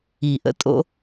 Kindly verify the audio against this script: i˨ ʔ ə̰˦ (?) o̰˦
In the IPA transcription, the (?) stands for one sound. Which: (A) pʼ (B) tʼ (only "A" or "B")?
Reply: B